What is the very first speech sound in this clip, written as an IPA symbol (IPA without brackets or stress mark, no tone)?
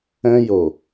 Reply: ɛ̃